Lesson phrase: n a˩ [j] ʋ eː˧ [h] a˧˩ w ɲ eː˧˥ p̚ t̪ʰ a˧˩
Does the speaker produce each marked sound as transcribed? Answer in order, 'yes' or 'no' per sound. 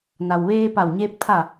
no, no

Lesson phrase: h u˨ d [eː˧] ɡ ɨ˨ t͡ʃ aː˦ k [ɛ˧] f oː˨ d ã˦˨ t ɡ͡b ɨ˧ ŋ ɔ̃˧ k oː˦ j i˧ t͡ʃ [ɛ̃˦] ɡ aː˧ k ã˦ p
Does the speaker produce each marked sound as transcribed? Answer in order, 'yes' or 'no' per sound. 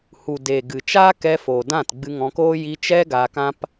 no, yes, no

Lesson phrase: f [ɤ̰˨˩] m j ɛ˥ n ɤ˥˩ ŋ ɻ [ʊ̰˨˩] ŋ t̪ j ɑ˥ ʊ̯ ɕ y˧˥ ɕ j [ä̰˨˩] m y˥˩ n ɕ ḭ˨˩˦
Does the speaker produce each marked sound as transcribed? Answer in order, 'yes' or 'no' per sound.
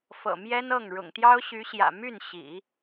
yes, yes, yes

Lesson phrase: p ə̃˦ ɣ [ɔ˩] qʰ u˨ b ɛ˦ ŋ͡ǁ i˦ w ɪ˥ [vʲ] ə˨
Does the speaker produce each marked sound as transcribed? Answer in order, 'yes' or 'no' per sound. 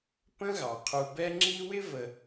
no, no

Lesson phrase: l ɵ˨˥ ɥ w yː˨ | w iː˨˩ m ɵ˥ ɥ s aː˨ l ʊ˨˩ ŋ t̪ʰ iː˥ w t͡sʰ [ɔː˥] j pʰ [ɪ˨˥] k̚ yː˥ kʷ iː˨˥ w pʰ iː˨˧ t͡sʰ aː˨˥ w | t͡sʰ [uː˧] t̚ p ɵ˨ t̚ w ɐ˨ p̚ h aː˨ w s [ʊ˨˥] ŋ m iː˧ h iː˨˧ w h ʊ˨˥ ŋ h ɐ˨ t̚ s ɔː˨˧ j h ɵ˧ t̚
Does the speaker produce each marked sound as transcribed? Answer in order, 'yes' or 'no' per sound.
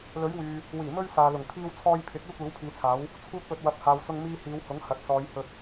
yes, yes, yes, no

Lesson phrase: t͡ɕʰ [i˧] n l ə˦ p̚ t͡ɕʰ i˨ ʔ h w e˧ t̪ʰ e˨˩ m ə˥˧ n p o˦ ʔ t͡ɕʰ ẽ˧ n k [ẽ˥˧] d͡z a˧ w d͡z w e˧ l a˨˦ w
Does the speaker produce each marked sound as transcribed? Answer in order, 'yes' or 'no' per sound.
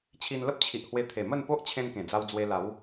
yes, no

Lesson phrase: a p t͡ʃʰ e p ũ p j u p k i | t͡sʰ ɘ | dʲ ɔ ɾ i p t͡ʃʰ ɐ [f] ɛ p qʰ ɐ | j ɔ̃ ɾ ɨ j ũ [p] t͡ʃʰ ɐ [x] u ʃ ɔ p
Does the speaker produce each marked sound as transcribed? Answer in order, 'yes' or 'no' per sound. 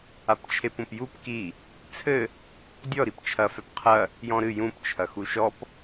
yes, yes, yes

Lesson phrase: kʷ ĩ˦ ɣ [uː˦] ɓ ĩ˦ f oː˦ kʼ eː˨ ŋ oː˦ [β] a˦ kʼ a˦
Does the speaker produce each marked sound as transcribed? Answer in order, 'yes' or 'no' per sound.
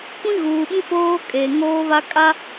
no, yes

